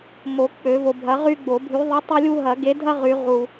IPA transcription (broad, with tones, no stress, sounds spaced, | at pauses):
m o˨˩˦ k͡p ø˨˩˦ v o˨ bʱ ɐ˨˥ ʁ y˦ ɡ͡b o˨˩˦ bʱ y˨˥ ðˤ i˨˥ tˤ o˦ lʲ u˦ ɦ ɐ˨˩˦ ɡ e˨˥ dʱ ɐ˦ ʁ y˨˩˦ ʁ u˨